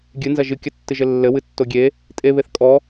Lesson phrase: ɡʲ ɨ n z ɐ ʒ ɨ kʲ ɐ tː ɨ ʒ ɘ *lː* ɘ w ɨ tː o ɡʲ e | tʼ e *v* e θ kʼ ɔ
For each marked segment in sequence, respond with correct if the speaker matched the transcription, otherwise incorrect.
correct, incorrect: β

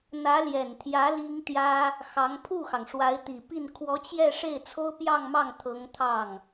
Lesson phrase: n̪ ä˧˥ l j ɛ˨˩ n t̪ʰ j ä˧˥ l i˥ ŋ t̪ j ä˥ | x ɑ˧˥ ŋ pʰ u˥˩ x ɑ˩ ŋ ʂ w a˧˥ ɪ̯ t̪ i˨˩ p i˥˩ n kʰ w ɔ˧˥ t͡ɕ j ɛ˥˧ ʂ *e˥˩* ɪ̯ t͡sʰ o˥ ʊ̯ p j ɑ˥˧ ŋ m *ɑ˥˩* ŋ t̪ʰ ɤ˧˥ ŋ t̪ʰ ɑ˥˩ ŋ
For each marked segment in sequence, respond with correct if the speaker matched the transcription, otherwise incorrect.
correct, correct

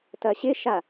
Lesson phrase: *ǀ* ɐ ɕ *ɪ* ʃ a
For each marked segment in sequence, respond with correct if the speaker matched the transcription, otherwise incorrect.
incorrect: t, correct

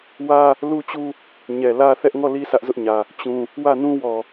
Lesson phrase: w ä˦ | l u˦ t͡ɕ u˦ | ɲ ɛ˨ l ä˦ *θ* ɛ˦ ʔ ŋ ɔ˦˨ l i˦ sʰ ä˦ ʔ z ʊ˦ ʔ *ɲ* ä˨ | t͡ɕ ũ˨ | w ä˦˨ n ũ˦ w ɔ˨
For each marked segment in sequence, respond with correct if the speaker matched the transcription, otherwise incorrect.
correct, correct

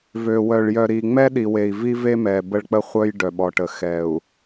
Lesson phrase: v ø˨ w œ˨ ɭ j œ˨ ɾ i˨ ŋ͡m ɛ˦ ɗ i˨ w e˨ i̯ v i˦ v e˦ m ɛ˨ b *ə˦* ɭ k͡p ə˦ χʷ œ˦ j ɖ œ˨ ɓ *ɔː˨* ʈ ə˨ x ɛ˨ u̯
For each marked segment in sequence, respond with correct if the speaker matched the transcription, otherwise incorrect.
correct, incorrect: ɔ˨

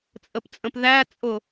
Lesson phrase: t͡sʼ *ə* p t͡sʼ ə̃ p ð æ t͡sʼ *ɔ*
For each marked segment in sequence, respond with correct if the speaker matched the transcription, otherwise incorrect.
correct, incorrect: ʊ

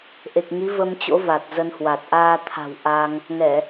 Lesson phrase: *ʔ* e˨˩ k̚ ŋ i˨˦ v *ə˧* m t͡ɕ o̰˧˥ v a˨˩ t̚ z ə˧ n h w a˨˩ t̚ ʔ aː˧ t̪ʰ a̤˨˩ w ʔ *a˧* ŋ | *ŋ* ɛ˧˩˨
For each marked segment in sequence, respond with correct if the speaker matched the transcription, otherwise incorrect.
correct, correct, correct, correct

